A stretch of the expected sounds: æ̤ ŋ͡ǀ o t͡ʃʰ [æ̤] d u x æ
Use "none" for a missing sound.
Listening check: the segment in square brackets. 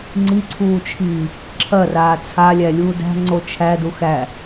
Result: æ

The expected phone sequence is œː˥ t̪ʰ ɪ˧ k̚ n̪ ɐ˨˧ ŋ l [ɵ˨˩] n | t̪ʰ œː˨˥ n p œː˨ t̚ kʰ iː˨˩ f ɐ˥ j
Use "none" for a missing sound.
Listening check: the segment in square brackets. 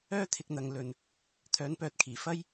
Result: ɵ˧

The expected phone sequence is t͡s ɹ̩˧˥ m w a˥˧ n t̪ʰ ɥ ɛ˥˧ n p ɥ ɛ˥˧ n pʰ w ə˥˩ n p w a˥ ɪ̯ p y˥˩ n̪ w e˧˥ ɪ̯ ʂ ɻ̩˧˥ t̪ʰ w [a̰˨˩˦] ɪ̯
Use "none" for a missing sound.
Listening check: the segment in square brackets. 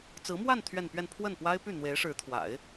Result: a̰˨˩˦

